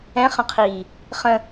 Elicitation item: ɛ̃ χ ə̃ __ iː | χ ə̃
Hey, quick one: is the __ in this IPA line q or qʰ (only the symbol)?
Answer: qʰ